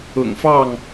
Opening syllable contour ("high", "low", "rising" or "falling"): low